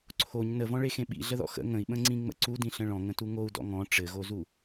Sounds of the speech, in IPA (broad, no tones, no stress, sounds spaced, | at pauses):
ǀʰ o ɲ n ə v ɔ̃ ɭ e x ẽ ɓ ḭ ɮ ə ð ɔ̰ x ə̰ ŋ ə̃ i̯ ɓ ə̃ ŋ͡ǀ ĩ ŋ͡m ə̰ ǀ u d ĩ ɬ ə̃ ɭ ɔ̃ ŋ ə̃ t u ŋ o u̯ d ɔ̰ ŋ ɔ̃ ʈ͡ʂ ɘ ɣ o z u